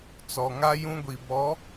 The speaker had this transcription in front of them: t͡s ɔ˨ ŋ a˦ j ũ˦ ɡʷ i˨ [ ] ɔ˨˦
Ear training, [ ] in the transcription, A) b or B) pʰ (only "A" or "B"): A